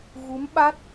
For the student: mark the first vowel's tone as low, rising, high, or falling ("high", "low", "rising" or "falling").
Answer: rising